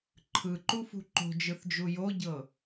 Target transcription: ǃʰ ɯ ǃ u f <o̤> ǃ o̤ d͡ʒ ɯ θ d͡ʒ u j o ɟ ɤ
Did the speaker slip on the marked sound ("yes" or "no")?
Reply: yes